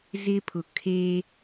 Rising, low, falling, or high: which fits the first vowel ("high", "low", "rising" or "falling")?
high